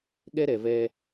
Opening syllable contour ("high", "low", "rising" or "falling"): high